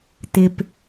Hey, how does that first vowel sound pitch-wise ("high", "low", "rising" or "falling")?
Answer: low